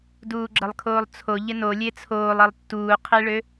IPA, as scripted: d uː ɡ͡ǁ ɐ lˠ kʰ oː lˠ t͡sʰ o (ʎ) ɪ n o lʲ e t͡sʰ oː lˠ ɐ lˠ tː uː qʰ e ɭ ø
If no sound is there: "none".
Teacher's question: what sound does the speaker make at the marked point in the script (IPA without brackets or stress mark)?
ʎ